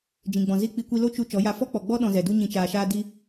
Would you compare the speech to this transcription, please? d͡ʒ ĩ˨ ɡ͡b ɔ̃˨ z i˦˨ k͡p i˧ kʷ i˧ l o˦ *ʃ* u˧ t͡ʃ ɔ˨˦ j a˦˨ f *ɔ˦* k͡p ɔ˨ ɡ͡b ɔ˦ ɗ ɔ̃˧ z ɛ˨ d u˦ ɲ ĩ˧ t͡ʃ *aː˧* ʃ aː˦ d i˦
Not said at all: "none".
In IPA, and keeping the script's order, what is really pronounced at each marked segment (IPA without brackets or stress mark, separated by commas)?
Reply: t͡ʃ, ɔ˦, aː˧